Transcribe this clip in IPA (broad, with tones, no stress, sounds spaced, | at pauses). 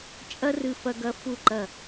t͡ʃʼ ɐ˥ r ɨ˧ f ɐ˧ ɡ ɐ˧ f u˧˩ ǃ ɐ˧˩